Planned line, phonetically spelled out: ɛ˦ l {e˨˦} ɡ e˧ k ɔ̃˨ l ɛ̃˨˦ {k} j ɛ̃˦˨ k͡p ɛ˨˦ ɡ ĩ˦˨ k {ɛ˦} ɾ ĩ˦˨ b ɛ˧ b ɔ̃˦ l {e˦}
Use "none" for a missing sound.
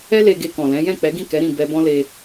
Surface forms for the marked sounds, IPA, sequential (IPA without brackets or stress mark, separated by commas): e˧, none, ɛ˨˦, e˧